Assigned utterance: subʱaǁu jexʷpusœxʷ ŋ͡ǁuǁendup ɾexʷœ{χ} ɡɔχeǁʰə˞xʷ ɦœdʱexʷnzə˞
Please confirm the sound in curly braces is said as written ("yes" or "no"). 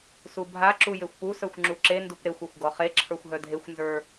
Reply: no